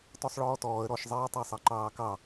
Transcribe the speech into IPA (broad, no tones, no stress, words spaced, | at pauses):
tɔsˤɭɔːtɔːə̯ ɾɔʃzˤeːtˤɑsˤɑ ǃɑːkɑ